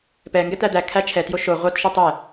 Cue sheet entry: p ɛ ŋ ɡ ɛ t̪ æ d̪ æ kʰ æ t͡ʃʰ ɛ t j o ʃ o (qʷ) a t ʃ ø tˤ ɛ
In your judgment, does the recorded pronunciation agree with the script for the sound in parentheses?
no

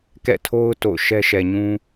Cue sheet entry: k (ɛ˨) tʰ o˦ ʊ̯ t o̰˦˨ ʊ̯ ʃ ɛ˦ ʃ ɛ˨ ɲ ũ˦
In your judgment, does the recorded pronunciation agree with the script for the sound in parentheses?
no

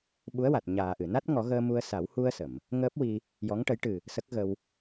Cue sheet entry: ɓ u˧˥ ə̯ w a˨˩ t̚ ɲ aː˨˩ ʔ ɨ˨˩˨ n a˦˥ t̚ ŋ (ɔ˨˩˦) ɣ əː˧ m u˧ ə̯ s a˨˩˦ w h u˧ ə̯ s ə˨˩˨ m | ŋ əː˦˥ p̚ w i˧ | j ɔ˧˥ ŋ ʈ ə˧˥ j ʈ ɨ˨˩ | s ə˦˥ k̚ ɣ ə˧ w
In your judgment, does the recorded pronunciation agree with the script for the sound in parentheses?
yes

